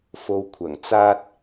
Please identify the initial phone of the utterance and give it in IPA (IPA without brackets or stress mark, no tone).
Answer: f